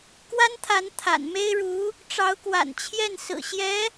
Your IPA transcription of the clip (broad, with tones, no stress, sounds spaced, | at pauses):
k w a˥ n t̪ʰ a˧˥ n t̪ʰ a̰˨˩ n m e˥ ɪ̯ ɻ u˧˥ | ʈ͡ʂ ɑ˧˥ ʊ̯ k w a̰˨˩ n t͡ɕʰ j ɛ˥˩ n s ɹ̩˨˩ ɕ j ɛ˧˥